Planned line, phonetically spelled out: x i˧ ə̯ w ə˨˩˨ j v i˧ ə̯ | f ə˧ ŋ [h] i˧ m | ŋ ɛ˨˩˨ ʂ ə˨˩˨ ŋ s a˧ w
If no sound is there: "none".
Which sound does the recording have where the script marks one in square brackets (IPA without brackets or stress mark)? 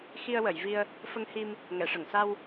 h